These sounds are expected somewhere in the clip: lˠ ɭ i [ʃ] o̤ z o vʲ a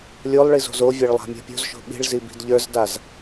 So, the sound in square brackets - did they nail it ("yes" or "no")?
no